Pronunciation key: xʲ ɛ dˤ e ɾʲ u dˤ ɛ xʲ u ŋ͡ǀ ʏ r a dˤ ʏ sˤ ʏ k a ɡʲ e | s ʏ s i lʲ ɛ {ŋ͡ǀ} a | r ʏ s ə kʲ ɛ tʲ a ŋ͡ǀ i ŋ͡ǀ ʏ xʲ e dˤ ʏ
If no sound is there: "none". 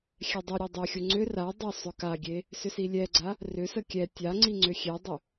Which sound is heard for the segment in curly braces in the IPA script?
ɡ͡ǀ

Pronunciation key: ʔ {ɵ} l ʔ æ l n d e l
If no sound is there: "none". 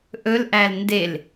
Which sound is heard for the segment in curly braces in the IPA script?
ɵ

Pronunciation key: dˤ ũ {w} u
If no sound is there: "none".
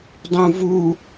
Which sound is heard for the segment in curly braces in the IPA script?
v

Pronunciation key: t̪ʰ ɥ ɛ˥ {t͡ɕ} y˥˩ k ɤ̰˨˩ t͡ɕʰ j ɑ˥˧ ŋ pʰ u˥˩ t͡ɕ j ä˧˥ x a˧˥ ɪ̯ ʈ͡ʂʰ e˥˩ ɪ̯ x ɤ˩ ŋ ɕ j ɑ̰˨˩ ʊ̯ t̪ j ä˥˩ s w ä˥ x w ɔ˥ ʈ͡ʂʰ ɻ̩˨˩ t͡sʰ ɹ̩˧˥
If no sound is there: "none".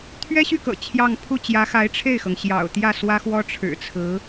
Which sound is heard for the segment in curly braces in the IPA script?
ɕ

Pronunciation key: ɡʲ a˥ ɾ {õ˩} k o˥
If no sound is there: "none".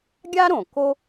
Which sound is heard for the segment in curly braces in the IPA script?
õ˩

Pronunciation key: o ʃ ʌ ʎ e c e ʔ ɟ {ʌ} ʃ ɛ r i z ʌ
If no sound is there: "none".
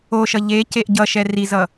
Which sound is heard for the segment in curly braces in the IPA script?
ʌ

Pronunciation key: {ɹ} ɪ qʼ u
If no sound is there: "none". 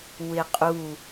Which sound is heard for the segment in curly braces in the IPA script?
w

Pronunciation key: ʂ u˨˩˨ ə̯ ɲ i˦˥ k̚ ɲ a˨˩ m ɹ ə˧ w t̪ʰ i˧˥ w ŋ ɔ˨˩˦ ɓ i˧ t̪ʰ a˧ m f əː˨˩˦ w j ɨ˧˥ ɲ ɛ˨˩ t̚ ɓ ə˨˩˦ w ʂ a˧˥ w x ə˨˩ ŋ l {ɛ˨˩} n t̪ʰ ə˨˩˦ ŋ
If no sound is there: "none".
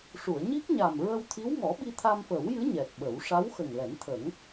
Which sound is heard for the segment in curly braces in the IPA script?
ɛ˨˩˦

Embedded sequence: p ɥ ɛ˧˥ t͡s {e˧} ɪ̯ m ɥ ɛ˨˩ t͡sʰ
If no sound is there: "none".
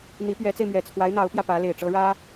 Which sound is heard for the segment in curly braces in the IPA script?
e˧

